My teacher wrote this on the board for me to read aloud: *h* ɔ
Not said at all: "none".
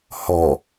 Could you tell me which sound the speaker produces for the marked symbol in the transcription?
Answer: h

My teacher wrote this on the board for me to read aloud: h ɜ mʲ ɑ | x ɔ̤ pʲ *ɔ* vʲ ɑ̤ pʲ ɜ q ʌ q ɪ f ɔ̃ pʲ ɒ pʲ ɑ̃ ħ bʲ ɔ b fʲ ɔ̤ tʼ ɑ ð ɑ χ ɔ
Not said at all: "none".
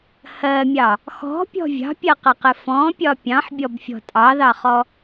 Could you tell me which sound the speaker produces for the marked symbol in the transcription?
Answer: ɔ̤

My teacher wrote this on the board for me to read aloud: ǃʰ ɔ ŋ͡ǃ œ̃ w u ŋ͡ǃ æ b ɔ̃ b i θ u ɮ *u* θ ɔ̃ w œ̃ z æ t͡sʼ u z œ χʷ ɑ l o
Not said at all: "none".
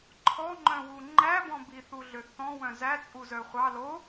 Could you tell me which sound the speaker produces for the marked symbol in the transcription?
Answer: ø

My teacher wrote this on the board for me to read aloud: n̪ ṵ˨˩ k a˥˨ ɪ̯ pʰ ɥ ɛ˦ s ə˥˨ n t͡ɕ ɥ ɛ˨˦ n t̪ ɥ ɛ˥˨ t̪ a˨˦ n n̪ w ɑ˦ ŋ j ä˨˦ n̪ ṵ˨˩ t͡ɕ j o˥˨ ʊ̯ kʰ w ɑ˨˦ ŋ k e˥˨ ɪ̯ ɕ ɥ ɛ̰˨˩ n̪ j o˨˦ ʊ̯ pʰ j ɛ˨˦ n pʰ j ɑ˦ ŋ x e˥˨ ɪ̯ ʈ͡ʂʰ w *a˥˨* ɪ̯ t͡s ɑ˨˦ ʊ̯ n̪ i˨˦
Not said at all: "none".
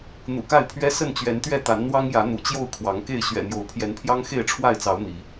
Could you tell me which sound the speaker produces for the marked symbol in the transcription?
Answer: a˥˨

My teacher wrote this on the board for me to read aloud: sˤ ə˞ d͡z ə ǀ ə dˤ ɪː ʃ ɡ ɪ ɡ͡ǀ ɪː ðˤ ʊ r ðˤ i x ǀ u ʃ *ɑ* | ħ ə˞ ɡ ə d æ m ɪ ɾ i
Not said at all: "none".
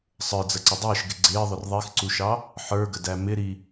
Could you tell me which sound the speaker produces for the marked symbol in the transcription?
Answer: ɑ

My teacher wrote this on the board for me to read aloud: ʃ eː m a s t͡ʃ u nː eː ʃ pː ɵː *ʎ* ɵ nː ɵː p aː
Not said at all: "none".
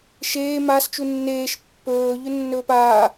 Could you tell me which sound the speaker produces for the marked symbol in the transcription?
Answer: ʎ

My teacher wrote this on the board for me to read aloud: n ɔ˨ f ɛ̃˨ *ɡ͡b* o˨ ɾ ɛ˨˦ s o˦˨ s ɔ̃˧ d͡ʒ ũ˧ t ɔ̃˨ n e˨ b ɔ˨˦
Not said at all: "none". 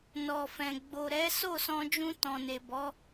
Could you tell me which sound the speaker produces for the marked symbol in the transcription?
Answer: ɡ͡b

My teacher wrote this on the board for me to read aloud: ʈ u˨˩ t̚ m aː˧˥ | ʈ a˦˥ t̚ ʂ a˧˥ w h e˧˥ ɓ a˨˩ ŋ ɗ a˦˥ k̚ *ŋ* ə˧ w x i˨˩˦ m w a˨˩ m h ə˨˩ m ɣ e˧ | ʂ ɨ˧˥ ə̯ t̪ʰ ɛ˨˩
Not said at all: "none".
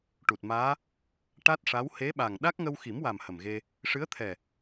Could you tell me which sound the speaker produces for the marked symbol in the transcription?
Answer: ŋ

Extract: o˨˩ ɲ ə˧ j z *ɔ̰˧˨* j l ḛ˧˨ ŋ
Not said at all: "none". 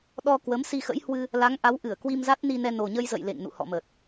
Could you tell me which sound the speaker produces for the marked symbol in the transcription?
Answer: ə̰˧˨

